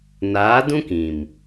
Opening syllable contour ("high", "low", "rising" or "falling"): rising